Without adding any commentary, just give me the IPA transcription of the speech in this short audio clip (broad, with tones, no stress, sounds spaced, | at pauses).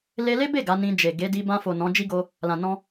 l e˧ l e˦ b e˦˨ ɡ a˨˦ n ĩ˧ d͡ʒ e˨ ɡ e˨˦ d i˧ b ã˧ f o˨ n ɔ̃˨˦ d͡ʒ i˦ ɡ o˧ | l ã˨ n ɔ̃˧